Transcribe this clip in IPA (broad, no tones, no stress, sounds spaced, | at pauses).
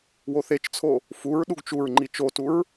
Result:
w o θ e t͡ʃ t͡sʰ o | f u ɹ ɗ u ɡ t͡ʃ u ɹ ŋ͡ǃ i t͡ʃ o t u ɹ